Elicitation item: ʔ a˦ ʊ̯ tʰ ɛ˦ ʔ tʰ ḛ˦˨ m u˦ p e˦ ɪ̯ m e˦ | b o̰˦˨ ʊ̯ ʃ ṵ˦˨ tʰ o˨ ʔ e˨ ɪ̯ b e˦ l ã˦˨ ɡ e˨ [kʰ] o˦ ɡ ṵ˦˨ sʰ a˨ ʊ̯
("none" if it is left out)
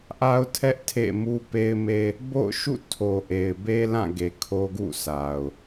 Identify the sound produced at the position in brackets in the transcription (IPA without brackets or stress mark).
kʰ